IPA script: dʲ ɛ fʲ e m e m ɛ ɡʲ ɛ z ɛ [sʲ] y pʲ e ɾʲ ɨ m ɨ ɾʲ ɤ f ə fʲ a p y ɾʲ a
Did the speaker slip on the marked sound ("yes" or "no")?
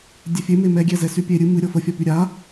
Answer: yes